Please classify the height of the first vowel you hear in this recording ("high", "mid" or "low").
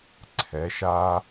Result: mid